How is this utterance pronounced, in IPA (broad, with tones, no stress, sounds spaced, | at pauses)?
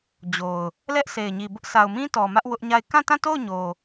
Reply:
d͡ʑ o˨ ʊ̯ | l ɛ˦ ʔ s e˨ ɪ̯ ɲ i˨ b ʊ˦ ʔ sʰ a˨ ʊ̯ m ĩ˦ t ɔ˨ m ä˦ ʔ w ʊ˦ ʔ ɲ a˦˨ ɪ̯ k ã˦˨ t ã˦˨ t o˦˨ ʊ̯ ɲ o˨